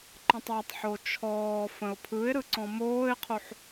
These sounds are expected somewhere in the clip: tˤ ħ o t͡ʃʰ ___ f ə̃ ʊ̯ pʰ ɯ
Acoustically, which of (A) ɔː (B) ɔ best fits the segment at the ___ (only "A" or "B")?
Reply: A